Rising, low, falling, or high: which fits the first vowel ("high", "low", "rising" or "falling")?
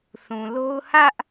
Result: low